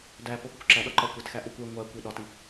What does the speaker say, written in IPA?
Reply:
d æ p o x u kʷ ǁ æ ɗ ɒ ǃ ɒ kʷ e t x æ ʔ u kʷ e ŋʷ æ kʷ i ɗ ɒ t i

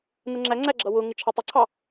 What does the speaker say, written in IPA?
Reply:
n̪ ə ŋ͡ǁ æ ŋ͡ǀ æ ɡ͡ǁ ʌ w ʊ ŋ ɪ t͡ʃʰ ɑ tˤ ɪ ǀʰ ɑ

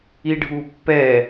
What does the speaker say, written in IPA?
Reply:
i ɖʱ u pː ɛ

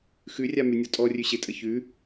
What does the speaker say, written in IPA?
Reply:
x ʉ rʲ a m ʉ nʲ ɔ tʼ ɔ rʲ ʉ ɕ ɪ tʼ ə ç ʉ

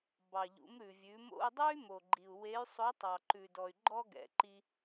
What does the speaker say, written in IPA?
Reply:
b ɑ˩ ʎ ṵ˩˧ m ɾ ʉ˩ vʲ ʉ˩˧ m o̰˧ u̯ dˤ ʉ˥ y̯ m o˩ ɡ͡ǃ i˩ u̯ w e˧˥ y̯ sˤ o˧˥ tˤ ɑ˩ ǃ ʉ˩ d ɔ˩ y̯ ɡ͡ǃ ɔ˥ ɡ ɛ̰˩˧ ǃ i˧

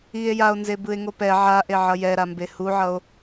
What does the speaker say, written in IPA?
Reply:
i e̯ j a o̯ n z e b ɯ e̯ ŋ o p ɛ ʕ a ʔ e ʕ ʌ j ɛ ɾ a m b e h u ʕ ʌ o̯

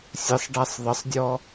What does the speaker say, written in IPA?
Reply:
sʲ ɘ sˤ ɖ a sˤ ðˤ ə sˤ dʲ ɔ

